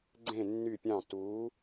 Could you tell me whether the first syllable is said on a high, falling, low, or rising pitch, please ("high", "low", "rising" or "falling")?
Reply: falling